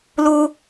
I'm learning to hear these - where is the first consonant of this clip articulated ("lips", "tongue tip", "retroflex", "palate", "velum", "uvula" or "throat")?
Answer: tongue tip